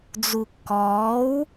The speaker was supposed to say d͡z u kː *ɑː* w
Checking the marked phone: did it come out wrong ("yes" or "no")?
yes